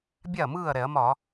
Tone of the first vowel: falling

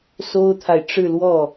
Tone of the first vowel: high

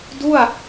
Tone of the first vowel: falling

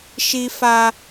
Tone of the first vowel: high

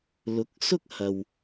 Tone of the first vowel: rising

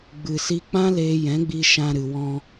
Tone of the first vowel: low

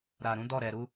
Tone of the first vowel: low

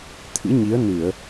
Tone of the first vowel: rising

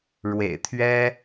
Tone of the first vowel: low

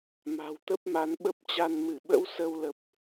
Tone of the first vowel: low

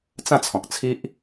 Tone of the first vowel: falling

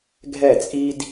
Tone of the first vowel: falling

